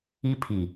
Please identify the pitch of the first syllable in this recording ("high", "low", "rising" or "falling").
high